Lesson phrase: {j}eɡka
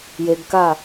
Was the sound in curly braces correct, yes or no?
yes